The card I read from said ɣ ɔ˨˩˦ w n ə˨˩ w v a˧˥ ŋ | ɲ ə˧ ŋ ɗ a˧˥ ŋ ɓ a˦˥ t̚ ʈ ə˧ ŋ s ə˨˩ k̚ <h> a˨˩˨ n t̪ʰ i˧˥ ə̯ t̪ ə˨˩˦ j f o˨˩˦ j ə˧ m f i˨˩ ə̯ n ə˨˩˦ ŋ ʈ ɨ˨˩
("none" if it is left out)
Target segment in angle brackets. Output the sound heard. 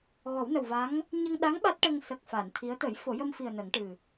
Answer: f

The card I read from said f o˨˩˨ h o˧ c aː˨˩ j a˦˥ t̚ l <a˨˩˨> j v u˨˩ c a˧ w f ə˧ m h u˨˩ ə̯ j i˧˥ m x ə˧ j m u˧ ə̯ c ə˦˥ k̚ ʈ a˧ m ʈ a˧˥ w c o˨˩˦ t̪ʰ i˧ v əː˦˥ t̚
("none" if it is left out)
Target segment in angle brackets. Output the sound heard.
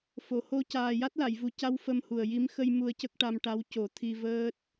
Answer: a˨˩˨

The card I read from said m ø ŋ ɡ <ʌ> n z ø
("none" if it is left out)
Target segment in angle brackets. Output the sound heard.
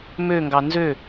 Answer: ɑ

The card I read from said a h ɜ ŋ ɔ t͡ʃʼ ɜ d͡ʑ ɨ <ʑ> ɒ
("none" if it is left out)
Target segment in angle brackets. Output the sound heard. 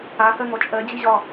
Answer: ʑ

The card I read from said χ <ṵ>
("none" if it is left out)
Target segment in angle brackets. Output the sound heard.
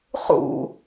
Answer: ṵ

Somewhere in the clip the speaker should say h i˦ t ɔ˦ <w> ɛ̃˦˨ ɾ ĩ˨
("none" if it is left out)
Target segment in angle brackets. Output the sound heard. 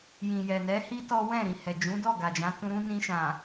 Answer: w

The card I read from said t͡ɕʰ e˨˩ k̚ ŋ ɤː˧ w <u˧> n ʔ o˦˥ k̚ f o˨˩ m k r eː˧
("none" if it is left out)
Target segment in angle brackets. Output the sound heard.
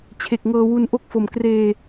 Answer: u˧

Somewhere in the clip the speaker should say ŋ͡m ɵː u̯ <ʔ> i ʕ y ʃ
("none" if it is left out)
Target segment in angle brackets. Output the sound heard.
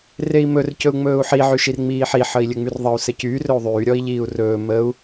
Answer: ħ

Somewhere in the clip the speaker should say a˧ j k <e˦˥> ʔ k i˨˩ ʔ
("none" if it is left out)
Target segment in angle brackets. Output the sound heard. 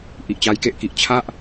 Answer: e˦˥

